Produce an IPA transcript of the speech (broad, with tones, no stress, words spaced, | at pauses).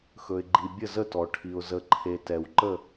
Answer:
xɵ˩ɪ̯ɡ͡ǃi˩ bʲə˧˩zə˧˩tɔ˩ ʈʰi˩ʊ̯ zə˩ǃʰe˩ tɛ˩wǃə˧˩